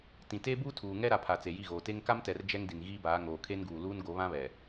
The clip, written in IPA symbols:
t ĩ˨ t e˦ b u˦ tʰ uː˨ ŋ ɛ˦ ɾ a˨ pʰ a˨ t͡s e˨ j i˦˨ ɣ oː˨ t e˦ ŋ k a˦ m t ɛ˨ r d͡ʒ ɛ˦ ŋ d i˨ n ɣ iː˦ b aː˨˦ ŋ oː˨ kʰ e˦ n ɡ uː˨ l uː˦ n ɡ o˨˦ β ã˦ β ɛ˨

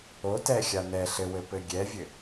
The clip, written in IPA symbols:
o t ɛ xʲ a n ɛ ɬ ɘ w ɘ p ɘ ɡʲ ɛ vʲ ɘ

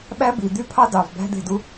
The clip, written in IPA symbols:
ɓ æ˦ b i˨ d̪ y˦ pʰ ɑ˦ d ɑ˨ v b æ̤˦ d̪ e̤˦˨ d u˦

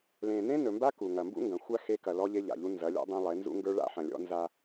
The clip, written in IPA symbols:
l ẽ˨ n ẽ˦ n ɵ˨ m b a˦ k u˨ ŋ ɐ˨ m b ṵ˦ ŋ ɡ ɐ̃˨ xʷ a˦ x e˦ k ɐ˨ l ɔ˦ ʎ e˦ ʎ a̰˨ ʎ u˦ n z ɐ˨˦ lʲ ɔ̰˦ dˤ ẽ˦ lˠ e˨˦ n z ṵ˦ ŋ ɡ ə˞˦ ɭ a̰˦ ħ ɐ̃˨ lʲ ɔ̰˦ n z a˦

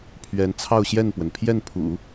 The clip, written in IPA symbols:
pʰ ɥ ɛ˧˥ n t͡sʰ ɑ˥˧ ʊ̯ ɕ j ɛ˥˩ n p w ə˩ n pʰ j ɛ˥˩ n pʰ ṵ˨˩˦

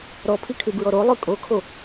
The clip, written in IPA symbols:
ɾ ɔ pʰ i kʰ y b ɹ ɔ ɾ o lˠ ʉ kʼ o kʰ o

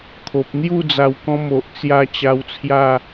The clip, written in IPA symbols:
kʰ o˨ p̚ n̪ j u˥˧ d͡z a˧ w k ɔ̃˦ m o˨ ʔ t͡s j a˦ t͡ɕ a˧ w t͡sʰ j a˥˧

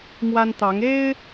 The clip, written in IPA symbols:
m w a˦ n t̪ ɑ˨˦ ŋ e˦ ɪ̯

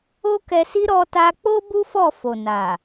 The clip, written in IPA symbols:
o˦ k ɛ˧ s i˦ ɾ ɔ˧ t a˧ k͡p o˦ b u˦ f ɔ˦˨ f o˨ n a˨

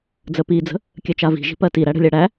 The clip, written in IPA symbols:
d͡z ə p i d͡z ə̤ | kʲ ɜ t͡ʃ a v i̤ ʒ i̤ p ɜ t i ɾ æ ɽ ə̤ lʲ a ɽ æ

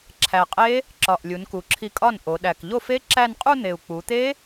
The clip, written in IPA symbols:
ǁʰ æ˨˩ qʼ e˦˥ | ǁ ɒ˨˩ ʔ lʲ u˩˧ n k u˨˩ ǁʰ i˧ kʼ ɒ˥˩ n ʔ o˩˧ ɗ æ˨˩ k ʎ o˥˩ f e˦˥ ǁ æ˥˧ n qʼ u˥˧ n̪ e˨˩ u̯ k͡p u˩˧ t̪ e˦˥

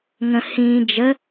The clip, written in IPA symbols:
ŋ ə̃ h ĩ d͡ʒ ə

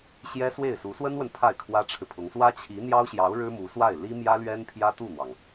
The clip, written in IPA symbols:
ɕ j ɛ˥ s w e˥˩ ɪ̯ s u˧˥ s w ə˥ n w ə˨ n pʰ a˥˩ ɪ̯ kʰ w ä˥ ʈ͡ʂʰ ɻ̩˨ pʰ ʊ˧˥ ŋ s w ä˥ t͡ɕʰ i˧˥ n̪ j ɑ˥ ʊ̯ ɕ j ɑ˧˥ ʊ̯ ɻ ɻ̩˥ m u˧˥ s w a˥˩ ɪ̯ l i˥ m j ä˥ l ɥ ɛ˥ n pʰ j ä˥ t̪ u˥˩ n̪ w ɑ˩ ŋ

